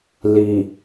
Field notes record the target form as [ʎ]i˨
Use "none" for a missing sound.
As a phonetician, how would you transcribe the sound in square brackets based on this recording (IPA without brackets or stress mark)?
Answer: l